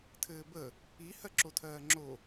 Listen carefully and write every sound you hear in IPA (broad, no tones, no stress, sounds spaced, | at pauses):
tʰ ɘː b ə | i h ɜ ǁ o tʰ ɜː ŋ͡ǁ o